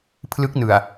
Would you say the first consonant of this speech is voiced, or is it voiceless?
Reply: voiceless